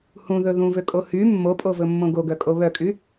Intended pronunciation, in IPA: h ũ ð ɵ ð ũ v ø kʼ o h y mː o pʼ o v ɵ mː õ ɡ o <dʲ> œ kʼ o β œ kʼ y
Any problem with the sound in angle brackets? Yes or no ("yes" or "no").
yes